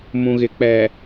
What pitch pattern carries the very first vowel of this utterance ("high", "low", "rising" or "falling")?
low